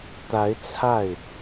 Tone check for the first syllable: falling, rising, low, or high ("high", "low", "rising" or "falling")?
rising